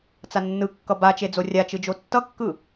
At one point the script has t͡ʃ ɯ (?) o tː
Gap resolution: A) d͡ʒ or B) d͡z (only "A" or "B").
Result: A